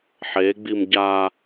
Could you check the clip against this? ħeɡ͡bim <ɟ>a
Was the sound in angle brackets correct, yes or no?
yes